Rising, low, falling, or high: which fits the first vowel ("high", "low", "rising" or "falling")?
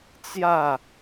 falling